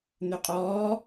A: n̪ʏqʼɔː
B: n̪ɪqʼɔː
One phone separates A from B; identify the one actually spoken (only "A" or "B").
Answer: A